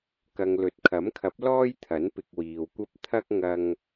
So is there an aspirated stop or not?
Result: yes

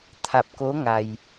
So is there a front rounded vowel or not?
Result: no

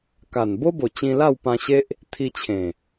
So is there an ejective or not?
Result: no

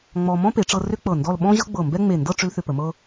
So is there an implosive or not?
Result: yes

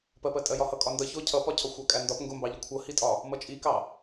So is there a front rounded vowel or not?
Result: no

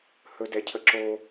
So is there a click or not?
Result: yes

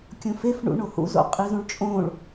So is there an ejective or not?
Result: yes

